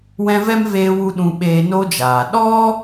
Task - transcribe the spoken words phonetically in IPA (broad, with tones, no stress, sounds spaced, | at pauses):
w ɛ̃˧ v ɛ˦ m v eː˧ w u˧ ɗ ũ˧ ɓ eː˧ n o˦ d͡ʒ aː˨ ɗ ɔ˦